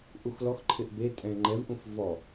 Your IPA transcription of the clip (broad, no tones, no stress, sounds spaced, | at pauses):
ʔ u x l ɔ x ǃʰ ɪ ʔ b e tʼ ɛ̃ ŋ͡ǃ ɛ v ʔ ũ f v ɔ